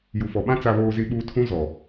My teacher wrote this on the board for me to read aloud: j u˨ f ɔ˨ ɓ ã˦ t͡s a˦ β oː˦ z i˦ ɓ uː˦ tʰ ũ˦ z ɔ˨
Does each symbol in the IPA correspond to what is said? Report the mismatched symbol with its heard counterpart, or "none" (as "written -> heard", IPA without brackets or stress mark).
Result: none